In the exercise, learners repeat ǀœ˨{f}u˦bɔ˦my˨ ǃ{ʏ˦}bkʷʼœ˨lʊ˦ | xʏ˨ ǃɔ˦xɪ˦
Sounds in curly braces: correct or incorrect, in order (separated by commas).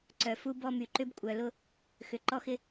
correct, correct